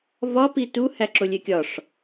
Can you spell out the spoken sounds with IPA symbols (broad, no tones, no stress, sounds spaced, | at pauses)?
v ɒ p i t u h æ ǁ o lʲ e kʲ ɒ ʂ